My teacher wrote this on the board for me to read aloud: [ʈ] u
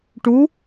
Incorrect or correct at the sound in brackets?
correct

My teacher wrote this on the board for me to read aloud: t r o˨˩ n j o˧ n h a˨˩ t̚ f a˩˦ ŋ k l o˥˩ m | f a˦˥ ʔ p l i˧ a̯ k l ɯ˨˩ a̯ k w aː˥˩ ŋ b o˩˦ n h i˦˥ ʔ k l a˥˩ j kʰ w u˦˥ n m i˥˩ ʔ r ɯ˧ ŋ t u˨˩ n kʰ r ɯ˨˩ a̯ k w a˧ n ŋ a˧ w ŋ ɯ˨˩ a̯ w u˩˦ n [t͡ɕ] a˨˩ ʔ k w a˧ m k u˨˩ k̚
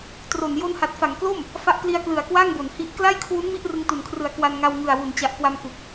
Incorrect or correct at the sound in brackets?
correct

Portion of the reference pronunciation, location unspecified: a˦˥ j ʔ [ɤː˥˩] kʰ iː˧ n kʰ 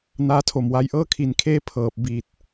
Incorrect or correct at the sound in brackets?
correct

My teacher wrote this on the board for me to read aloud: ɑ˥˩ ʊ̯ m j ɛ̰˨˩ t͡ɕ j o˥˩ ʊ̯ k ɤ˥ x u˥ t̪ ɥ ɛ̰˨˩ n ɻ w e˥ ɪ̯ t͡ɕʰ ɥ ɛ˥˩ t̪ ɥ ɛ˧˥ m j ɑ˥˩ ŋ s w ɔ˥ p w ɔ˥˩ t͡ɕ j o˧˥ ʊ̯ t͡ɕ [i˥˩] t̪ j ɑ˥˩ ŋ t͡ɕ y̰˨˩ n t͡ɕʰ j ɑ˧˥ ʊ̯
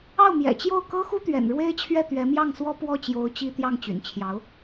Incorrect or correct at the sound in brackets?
incorrect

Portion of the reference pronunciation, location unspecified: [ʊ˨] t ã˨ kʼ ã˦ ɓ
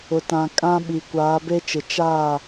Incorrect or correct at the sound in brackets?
correct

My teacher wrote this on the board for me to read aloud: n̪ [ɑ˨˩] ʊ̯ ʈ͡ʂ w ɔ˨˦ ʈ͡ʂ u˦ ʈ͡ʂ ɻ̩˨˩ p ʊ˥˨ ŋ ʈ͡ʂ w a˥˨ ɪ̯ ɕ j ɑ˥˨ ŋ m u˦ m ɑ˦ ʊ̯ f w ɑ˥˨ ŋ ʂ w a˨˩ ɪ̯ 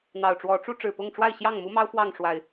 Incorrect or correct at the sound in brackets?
correct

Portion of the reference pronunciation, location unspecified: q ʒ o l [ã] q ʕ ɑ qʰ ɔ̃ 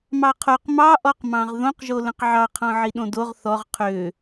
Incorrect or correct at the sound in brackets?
incorrect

